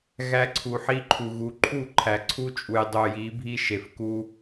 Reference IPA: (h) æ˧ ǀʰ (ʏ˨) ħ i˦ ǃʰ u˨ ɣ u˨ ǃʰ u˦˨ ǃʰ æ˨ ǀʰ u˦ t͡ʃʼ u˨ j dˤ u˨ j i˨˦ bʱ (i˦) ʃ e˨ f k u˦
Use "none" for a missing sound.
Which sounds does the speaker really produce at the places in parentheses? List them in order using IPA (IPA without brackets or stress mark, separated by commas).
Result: ɣ, u˨, i˦